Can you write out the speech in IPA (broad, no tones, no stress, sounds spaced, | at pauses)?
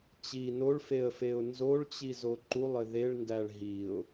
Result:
t͡ɕ i n o ɭ f e ə̯ f e ʊ̯ n z o ɭ t͡ɕ i z o ǃ u lˠ ɘ ð e ɭ n d æ ɭ ɦ i ʊ̯